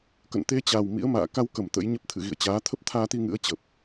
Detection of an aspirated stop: present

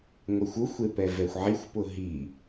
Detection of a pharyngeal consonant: present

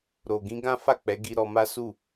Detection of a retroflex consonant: absent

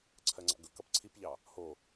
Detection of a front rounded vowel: absent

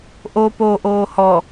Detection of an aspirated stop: absent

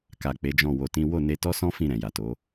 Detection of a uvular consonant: absent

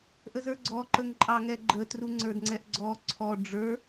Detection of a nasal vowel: absent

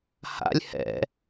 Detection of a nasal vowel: absent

